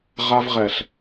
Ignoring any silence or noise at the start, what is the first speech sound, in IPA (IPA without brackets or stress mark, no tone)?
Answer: ʁ